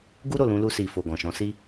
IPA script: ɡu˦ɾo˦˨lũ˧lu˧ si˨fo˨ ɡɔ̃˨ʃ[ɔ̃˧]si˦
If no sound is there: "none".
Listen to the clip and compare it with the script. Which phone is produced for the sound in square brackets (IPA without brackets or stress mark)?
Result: ɔ̃˨˦